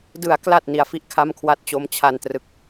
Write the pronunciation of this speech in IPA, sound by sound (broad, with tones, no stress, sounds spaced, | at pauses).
d ɯ˩˦ a̯ k l a˨˩ t̚ n i˨˩ a̯ f i˥˩ ʔ kʰ a˥˩ m kʰ w a˥˩ t̚ t͡ɕ o˧ m t͡ɕʰ a˧ n t r ɯ˨˩ k̚